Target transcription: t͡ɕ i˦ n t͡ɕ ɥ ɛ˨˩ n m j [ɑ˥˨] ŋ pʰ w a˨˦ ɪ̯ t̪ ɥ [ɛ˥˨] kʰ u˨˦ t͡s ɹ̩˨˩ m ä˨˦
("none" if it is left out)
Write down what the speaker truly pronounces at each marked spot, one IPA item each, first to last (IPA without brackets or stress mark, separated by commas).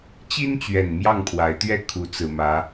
ɑ˥˨, ɛ˥˨